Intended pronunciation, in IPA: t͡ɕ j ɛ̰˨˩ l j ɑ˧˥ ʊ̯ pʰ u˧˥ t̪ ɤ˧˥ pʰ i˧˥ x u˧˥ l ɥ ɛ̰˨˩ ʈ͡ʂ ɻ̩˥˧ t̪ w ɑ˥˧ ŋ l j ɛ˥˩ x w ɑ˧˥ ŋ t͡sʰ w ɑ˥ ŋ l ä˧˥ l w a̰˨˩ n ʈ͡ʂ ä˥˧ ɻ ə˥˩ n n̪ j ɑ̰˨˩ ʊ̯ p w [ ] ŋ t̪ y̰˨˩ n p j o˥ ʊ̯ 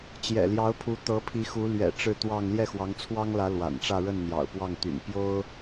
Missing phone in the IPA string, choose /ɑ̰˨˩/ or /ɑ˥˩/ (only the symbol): ɑ˥˩